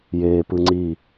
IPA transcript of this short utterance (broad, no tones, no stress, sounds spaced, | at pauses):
j eː p ɯ ŋ͡ǀ i